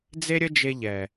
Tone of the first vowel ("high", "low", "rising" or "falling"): high